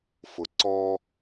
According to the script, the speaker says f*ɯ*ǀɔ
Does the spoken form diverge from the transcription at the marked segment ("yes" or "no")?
yes